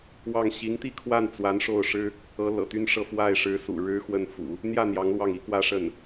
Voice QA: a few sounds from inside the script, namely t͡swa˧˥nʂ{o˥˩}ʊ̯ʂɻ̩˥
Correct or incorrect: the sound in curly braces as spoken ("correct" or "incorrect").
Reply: correct